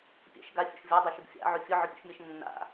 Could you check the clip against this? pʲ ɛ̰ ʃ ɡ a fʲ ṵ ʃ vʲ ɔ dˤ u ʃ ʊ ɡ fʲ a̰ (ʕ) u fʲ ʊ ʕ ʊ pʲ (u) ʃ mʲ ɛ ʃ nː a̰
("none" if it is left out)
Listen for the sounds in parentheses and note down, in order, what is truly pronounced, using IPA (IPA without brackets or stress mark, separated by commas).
ʕ, ṵ